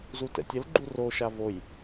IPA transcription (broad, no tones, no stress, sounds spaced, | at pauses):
z u t ɛ̰ tʲ ə l ɡ͡ǃ u r o ʃ a v o j